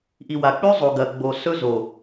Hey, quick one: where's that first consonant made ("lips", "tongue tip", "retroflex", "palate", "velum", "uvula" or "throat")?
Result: throat